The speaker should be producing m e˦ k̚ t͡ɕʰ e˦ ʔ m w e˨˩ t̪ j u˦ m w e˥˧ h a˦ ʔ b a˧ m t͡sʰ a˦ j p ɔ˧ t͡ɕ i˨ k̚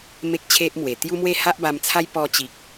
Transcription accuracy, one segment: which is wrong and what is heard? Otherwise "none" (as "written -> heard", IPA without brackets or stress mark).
none